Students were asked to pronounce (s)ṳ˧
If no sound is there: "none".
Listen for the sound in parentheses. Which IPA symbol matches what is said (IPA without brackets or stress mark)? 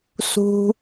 s